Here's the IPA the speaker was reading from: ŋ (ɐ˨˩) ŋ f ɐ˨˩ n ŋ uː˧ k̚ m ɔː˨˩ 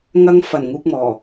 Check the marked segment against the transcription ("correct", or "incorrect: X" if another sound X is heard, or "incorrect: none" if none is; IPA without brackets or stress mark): incorrect: ɐ˧